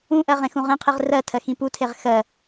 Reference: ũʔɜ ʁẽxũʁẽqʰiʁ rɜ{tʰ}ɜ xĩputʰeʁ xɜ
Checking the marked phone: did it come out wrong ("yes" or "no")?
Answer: no